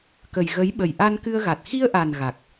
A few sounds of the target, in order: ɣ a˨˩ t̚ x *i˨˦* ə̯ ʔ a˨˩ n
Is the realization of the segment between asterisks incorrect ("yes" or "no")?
yes